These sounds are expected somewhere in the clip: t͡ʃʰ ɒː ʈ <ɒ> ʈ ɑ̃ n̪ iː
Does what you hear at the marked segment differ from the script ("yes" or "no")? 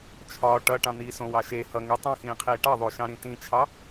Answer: yes